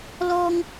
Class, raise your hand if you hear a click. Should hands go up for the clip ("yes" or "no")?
no